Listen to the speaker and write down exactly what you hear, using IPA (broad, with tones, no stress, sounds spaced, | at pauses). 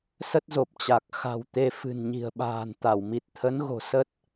s ə˦˥ t̚ z o˨˩ p̚ t͡ɕ a˨˩ k̚ x a̤˨˩ w t̪ e˨˦ f ɨ̤˨˩ n ɲ i̤˨˩ ə̯ ɓ a̤ː˨˩ n t̪ a˧˩ w m i˨˩ t̚ t̪ʰ ə˨˦ n ɣ o̤˨˩ s ə˦˥ t̚